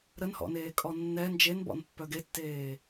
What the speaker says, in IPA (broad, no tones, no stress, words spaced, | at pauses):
ɾənhɔ̰neːkʼɔ nːɛ nd͡ʒenbɔ̰npːœ ɡetːeː